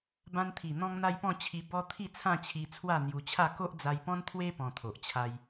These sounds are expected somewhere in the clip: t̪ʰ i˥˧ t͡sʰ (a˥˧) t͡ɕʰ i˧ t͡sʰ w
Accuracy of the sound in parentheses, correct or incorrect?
incorrect: ã˥˧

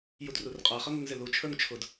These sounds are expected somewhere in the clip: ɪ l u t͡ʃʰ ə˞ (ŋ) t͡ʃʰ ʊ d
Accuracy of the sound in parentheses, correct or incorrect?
correct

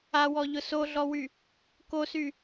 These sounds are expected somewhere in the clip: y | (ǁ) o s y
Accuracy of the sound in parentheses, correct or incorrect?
incorrect: k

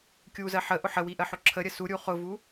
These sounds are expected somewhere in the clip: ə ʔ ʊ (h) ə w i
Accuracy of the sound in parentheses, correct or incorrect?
incorrect: ħ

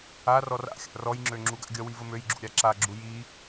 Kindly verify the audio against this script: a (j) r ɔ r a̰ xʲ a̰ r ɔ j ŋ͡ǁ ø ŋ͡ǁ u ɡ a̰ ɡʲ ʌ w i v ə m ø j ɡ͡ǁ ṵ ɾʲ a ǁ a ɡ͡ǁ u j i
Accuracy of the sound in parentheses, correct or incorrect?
incorrect: none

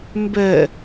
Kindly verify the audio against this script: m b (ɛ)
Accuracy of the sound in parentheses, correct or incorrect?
correct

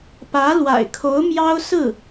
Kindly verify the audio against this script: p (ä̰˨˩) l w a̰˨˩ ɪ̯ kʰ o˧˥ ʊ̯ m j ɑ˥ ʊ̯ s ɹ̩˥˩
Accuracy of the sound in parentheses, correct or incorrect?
incorrect: ä˧˥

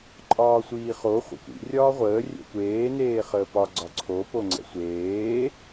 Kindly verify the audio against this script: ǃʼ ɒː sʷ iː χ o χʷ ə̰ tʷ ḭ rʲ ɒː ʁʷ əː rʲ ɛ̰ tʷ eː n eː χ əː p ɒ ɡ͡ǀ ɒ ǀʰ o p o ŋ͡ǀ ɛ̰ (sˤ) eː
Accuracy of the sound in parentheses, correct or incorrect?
incorrect: sʷ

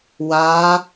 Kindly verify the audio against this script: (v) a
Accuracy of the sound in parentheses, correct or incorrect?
incorrect: w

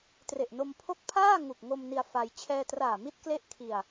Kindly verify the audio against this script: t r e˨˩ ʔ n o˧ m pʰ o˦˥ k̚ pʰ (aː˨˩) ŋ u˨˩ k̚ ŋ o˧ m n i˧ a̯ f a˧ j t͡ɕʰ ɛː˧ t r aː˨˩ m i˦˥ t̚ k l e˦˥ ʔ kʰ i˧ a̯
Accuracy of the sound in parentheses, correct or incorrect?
incorrect: aː˥˩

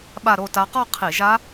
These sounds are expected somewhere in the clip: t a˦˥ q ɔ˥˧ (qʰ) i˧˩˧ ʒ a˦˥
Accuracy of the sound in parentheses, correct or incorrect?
correct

